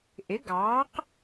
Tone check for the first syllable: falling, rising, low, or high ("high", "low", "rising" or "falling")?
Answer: rising